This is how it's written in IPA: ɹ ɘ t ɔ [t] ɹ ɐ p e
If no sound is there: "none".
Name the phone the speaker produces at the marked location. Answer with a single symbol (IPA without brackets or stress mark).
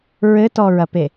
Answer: none